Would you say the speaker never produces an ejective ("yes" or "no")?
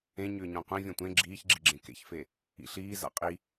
no